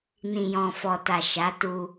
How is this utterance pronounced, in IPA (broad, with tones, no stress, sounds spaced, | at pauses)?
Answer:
n ĩ˨ j ɔ̃˨ f ɔ˨ t a˨ ʃ a˨˦ t u˧